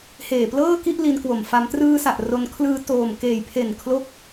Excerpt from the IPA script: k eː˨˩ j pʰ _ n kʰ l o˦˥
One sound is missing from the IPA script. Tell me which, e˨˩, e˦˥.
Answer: e˨˩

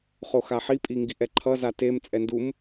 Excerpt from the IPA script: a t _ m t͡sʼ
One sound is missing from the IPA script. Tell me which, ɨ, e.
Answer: e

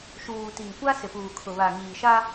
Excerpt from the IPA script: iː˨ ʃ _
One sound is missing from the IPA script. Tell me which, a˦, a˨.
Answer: a˦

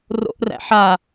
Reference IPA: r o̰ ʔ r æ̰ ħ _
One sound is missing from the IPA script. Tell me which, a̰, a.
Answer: a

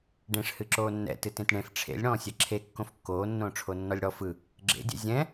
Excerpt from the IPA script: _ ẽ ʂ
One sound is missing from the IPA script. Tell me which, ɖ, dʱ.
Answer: ɖ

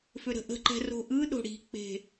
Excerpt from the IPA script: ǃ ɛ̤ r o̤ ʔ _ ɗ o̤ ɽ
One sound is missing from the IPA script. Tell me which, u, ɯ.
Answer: ɯ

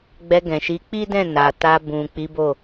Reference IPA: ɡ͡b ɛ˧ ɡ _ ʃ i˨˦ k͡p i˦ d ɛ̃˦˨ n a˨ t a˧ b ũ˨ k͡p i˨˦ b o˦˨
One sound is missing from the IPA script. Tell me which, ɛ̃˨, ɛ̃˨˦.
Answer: ɛ̃˨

